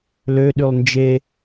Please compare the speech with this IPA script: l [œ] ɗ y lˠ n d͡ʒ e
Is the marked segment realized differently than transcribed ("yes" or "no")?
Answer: yes